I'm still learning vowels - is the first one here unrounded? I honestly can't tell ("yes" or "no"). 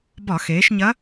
no